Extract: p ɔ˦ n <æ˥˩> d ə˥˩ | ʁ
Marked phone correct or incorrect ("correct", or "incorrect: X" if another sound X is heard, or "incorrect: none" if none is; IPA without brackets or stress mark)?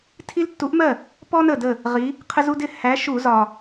incorrect: ə˥˩